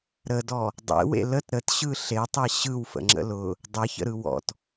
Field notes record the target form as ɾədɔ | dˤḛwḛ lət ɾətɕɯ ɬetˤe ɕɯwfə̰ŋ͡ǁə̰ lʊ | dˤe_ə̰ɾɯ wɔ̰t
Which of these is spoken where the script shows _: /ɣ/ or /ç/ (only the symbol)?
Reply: ç